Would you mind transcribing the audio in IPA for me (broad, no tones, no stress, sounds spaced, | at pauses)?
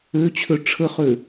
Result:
ø t͡ɕʰ ø ʈ͡ʂʰ ə χ ø